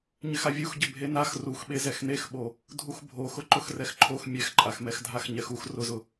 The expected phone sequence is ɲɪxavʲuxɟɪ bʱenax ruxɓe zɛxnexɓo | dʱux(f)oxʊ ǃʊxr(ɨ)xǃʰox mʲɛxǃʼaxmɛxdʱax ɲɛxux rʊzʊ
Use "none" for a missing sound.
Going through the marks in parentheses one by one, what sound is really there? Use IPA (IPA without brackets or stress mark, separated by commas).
bʱ, ɛ